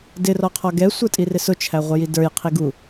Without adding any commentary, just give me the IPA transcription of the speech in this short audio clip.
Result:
d ɪ r ɔ qʰ ɔ ɡ ɛ sʷ ə˞ tʼ i r ɪ s ʊ t͡ʃʰ æ ʁʷ ə j i d ə˞ j qʰ i ɡ u

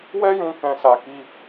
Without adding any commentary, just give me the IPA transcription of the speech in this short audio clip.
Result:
w ɛ˦ j ũ˧ k ɛ̃˧ s a˧ k i˧

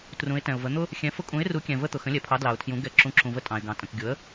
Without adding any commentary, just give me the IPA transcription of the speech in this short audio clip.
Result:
t r ũ˨˥ ɪ̯ t ɛ̃˨ ʊ̯ v ə˨˥ n̪ ʊ˦ | xʲ ɛ̃˨˥ f ʊ˦ kʼ ũ˨˥ ɪ̯ r u˨˥ kʲ ɛ̃˨ v ə˦ t̪ ʊ˨ x ə̃˨˥ lʲ ɛ˨ pʰ ɑ˨˥ d l ɑ˨ ʊ̯ tʰ j ũ˨˥ ɡ ɛ˨˥ ǁ ũ˨˥ ǁʰ ũ˨ v ə˦ tʼ ɑ̃˨ ɪ̯ ɡ ɑ̃˨ tʼ ə̃˨ k ɡʲ ʊ˨˥ ə̯

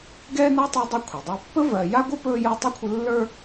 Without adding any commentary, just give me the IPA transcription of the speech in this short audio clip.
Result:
ɡ ɛː˥ n a˥ tˤ o˦ dˤ ɵ˦ kʷʰ ɛ˩ dˤ ə˞˦ pː ə˥ v ɜ˨ j a˥ ɡʷ ə˥ p ɵː˦ j əː˦ tˤ ɜ˥ kʷʰ ə˦ lː ə˞˥

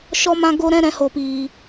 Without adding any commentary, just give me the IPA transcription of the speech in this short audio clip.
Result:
ʃ ɔ˧ m ã˧ ɡ o˧ ɾ ɛ̃˦ ɾ ɛ̃˨˦ h o˨ p iː˨

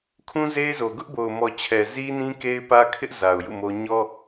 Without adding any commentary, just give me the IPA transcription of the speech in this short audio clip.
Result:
kʰ ũ˦ z e˦ ɪ̯ z o˨ ɡ ʊ˦ ʔ b o˨ ʊ̯ m ɔ˨ t͡ɕʰ ɛ˨ z i˦ n ĩ˦ k e˦ ɪ̯ p ä˦ kʰ ɪ˦ ʔ z a˨ ʊ̯ j ṵ˦˨ m o˦ ɲ ɔ˦

